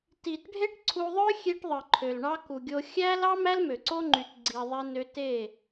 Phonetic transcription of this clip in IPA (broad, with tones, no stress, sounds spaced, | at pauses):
t i˨ t ɖʱ e˦ ʈ ǀʰ u˧ ðˤ ø˦ xʲ e˦ ʈ ðˤ ɯ˨ ǃʰ ø˨ l ɳ ɑ˦ k u˨ ɡʲ o˧ xʲ æ˦ l ɑ˦ m æ˦ l m ø˨ ǀ o˦ ŋ͡ǃ y˧ t ɡ͡ǀ i˧ ðˤ e˦ n ø˧ t e˦˨